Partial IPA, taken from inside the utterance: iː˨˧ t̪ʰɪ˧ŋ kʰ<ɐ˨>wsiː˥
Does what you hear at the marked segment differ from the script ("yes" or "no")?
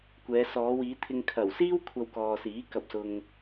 yes